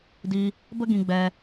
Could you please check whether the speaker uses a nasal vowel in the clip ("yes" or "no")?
yes